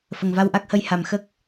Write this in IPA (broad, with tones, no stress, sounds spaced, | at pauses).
f ə˨˩ ŋ v a˧ w ʔ a˦˥ k̚ h ə˧˥ j h a˨˩ m x ə˦˥ k̚